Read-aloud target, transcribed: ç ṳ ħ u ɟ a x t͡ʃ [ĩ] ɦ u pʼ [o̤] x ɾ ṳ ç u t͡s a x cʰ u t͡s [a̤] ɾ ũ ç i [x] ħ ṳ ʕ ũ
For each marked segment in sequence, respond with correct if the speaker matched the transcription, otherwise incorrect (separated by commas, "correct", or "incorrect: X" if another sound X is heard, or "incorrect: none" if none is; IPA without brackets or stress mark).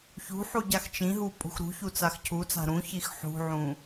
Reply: correct, incorrect: ṳ, correct, correct